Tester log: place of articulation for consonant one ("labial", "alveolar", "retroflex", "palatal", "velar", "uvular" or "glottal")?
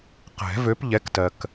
uvular